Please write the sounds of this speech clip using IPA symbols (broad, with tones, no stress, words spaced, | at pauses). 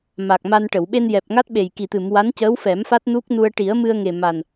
ma˨˩k̚ma˧nʈə˨˩˨w ɓe˧njɛ˨˩p̚ŋa˦˥t̚ɓe˨˩j ki˨˩t̪ɨ˨˩˨m wa˧˥ncəː˧˥wfɛ˨˩˦m fa˦˥t̚nu˦˥k̚nu˧ə̯ ʈi˨˩˦ə̯mɨ˧ə̯ŋe˨˩ ma˨˩n